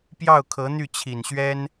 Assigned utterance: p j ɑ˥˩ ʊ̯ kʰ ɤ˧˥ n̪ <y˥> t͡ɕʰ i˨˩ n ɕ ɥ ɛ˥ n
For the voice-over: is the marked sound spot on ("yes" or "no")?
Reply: no